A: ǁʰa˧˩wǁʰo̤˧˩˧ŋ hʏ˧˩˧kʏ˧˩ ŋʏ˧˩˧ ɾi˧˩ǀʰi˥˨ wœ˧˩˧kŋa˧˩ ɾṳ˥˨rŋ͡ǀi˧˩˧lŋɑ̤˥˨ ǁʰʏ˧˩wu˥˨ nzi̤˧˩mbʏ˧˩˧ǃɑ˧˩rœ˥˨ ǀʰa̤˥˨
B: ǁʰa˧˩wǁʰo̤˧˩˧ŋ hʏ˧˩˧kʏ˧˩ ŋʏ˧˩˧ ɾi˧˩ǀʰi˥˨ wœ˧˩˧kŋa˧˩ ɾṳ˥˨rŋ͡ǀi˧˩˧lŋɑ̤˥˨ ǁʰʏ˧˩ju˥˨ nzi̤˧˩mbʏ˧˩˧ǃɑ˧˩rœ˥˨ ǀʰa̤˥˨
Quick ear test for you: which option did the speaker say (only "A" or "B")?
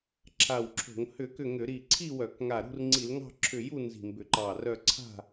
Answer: B